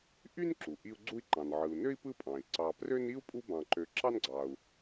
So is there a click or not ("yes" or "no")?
yes